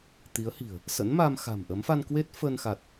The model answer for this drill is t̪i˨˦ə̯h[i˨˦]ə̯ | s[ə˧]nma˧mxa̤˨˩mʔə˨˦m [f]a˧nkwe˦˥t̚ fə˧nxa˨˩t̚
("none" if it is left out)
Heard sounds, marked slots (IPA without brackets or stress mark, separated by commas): i̤˨˩, ə̰˧˥, f